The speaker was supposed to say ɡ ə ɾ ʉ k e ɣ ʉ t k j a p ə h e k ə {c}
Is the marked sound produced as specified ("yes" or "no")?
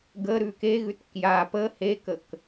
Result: no